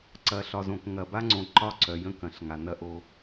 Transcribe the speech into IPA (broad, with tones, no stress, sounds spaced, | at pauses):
ǀ ɐ˨˦ ɬ ɒ˨ z õ˨ k ŋ ɐ˨ b a˦ ŋ͡ǀ õ˨ ǃ ɒ˦˨ ǀ œ˨ j ə̃˦ k ɐ̃˨ ɬ ŋ a˨ n ɐ˦ ʔ o˦